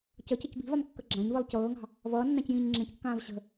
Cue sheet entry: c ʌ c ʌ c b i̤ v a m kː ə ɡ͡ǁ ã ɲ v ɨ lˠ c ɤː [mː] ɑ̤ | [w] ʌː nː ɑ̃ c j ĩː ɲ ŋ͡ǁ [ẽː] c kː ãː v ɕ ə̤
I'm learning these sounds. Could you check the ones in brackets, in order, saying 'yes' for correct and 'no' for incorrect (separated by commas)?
no, no, no